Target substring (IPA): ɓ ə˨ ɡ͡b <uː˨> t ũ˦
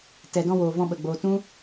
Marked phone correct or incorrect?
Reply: incorrect